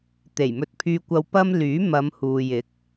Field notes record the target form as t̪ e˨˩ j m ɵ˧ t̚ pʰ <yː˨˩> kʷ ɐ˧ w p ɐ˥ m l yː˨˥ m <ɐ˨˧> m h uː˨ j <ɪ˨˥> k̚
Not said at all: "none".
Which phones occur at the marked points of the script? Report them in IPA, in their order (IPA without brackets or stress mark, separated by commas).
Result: yː˧, ɐ˨˧, ɪ˨˥